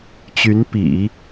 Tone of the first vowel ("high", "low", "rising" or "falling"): rising